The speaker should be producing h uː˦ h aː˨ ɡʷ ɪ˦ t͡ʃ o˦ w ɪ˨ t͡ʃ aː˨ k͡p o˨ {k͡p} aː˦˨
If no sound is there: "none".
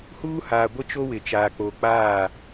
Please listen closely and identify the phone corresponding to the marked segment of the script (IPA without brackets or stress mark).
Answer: k͡p